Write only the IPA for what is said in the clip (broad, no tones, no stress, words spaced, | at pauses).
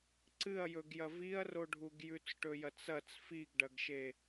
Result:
ǀɨɐ̯jɵɡjɐ viɐ̯roɖʱuɡ jʉt͡sʈɵjɐt͡sɐt͡s fiɡɖɐɡʃe